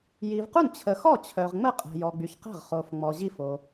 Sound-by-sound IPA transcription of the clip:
ji˨vqu˥˩n t͡ɕʰə˨xɔ˥˩ t͡ɕʰœ˨ʁ ŋ͡mə˥˩ qʼɛ̤˨jɔ˨ɡ͡by˨çqɛ̤˥˩ʁ χo˨fŋ͡mɔ˨ ʑi˥˩fo˨

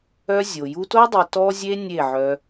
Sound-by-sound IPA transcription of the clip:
œ˦ zʲo˨ju˧to˦ dˤi˧tɔ˦zʲe˦ nʲe˦˨ʕœ˧

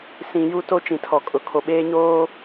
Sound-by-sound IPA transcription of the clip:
sĩ˨ ju˦to˦ t͡ʃĩ˨tʰɔ˨kʼʊ˨ kʰo˨ɓeː˦ɲoː˦

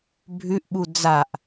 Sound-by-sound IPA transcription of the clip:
bʱʉʔɓu d͡zaʔ

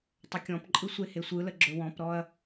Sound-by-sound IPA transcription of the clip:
tˤɵkʲɔ̃pǃʼɯ sʷehesʷɯlə ɡ͡ǁɵwɔ̃pɾɔɐ̯

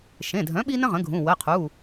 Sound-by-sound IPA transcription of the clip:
ʃẽ˩˧˩dʱœ̃˩˥ ɓi˥nə̃˥ʁə̃˩˥ɡʱũ˩˧˩ wə˩˧˩qʰu˩˧˩

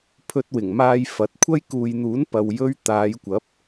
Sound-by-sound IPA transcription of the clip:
pʰɵ˧t̚wɪ˨˩ŋmaː˧j fɐ˨˥t̚ kʷʰɐ˥jkuː˨jn̪uː˨˥n pɐ˨wjɵ˥ɥ t̪aː˨˧jkʷɐ˨˥p̚

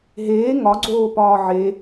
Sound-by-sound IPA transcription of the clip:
ɦeː ŋɒɡ͡ǀoːpɒː ʕe

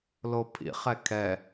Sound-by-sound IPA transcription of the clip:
lopʰḭ χɛkʰɛ

